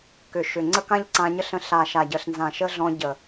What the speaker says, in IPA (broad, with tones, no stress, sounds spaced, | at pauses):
k ʏ˨ ʃ ʏ˨ ŋ͡ǀ ə˦ k ã˦ ʎ ǀ ã˧ ɲ ə˦ ɬ ə̃˧ ɬ a˨ ʃ a˨ ɟ ə˨ ɬ n z ã˨ ʃ ə˦ ɮ ɔ̃˧ ɟ ə˨